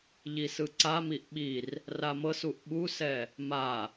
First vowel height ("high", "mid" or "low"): high